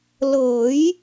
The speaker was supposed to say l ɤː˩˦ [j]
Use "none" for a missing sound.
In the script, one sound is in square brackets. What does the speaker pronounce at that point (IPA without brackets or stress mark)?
j